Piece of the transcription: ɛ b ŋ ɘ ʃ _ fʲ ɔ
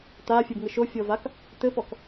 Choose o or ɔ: o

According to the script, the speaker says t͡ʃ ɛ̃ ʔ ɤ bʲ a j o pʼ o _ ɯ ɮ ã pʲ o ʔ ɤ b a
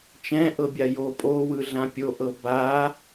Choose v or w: w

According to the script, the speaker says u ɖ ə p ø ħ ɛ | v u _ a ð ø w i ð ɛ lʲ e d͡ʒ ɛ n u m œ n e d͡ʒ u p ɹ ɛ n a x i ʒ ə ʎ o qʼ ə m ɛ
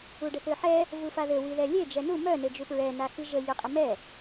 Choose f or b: f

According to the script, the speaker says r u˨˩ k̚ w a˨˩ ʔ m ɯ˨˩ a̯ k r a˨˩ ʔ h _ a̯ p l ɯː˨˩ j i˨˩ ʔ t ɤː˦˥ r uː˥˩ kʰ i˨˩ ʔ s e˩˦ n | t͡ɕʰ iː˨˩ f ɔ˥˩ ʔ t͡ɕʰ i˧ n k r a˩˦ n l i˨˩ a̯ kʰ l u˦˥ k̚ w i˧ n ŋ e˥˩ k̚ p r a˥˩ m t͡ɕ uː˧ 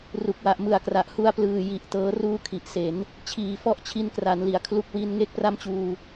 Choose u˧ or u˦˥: u˧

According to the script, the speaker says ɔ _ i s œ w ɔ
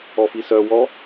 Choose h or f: f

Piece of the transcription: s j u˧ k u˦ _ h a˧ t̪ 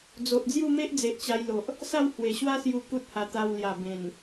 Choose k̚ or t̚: t̚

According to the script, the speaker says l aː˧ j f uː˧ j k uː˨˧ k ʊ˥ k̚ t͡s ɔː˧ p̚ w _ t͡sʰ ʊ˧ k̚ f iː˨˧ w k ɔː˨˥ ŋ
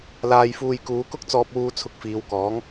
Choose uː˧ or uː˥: uː˧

